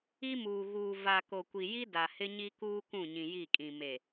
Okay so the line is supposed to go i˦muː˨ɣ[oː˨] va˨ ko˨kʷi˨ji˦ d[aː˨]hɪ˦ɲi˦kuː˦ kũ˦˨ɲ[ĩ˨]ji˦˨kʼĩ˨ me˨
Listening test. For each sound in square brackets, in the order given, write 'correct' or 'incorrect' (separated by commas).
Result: incorrect, incorrect, correct